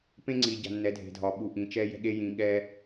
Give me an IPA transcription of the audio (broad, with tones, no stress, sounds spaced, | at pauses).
p ẽ˦ ŋ͡ǀ i˨ ɟ a̤˨ nː ɛ˨˦ dʱ e̤˨ dʱ ɒ˨ ɓ u˨ ʔ ĩ˨ t͡ʃ ɛ˦ j ɛ̤˦ ɠ e˦ j ĩ˦ ɠ ɛ˦